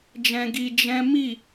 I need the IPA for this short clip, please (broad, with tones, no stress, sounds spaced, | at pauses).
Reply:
d͡ʒ ɛ̃˧ ɡ i˧ d͡ʒ ɛ̃˦ m i˦˨